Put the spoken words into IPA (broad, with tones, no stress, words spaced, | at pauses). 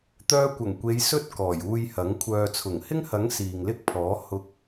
t̪œː˧kʷɐ˨˩ŋkʷe˨˧j sɵ˥t̚ kɔː˨˩juː˧j hɐ˨˥ŋ kʷʰœː˨t͡sʰʊ˨˩ŋ hɪ˥ŋhɐ˨˥ŋ siː˨ŋlɪ˥k̚pʰɔː˨˥ hʊ˧k̚